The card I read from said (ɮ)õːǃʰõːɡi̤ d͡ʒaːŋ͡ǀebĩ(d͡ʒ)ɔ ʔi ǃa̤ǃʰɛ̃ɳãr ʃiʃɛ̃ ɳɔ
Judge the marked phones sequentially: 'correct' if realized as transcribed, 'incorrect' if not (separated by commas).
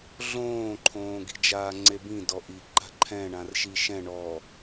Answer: correct, incorrect